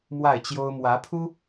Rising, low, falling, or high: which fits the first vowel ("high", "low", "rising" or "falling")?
falling